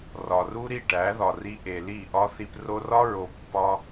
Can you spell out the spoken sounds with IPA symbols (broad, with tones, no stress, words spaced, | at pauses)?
rɒ˨ru˦ ɾi˦˨ʈæ˨˦ðɒ˨ri˧ ʔe˨li˦˨ ʔɒ˦θi˧p ro˧rɒ˦ɹo˨ pːɒ˦